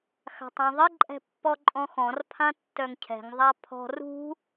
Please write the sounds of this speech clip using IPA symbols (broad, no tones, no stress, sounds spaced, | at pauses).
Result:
x a̤ tˤ ɔ̃ ðˤ ɪ ǃʼ ɛ̤ pː ɔ ǃʼ ɔ̃ x ɔ̃ r pʰ ã tː œ ŋ cʰ ɛ̤ ŋ ðˤ a pʰ ɔ̤ r ṳ